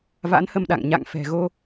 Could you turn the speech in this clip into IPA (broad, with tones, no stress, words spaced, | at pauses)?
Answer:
va̰˧˥nhə˧mɗa̰˧˨ŋ ɲa̰˧˨ŋfɛ̤˨˩ ɣo˧